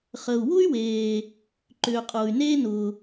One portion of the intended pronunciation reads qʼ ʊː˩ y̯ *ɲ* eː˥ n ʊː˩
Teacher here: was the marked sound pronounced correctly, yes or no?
no